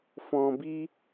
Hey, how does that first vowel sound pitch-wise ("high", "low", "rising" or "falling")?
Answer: low